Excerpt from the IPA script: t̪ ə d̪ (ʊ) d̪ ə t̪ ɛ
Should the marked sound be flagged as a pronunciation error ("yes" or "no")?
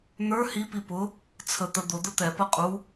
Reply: no